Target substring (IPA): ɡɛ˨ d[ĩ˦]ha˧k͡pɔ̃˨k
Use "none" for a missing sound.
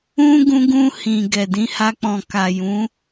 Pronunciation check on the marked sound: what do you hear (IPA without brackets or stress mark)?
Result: ĩ˨˦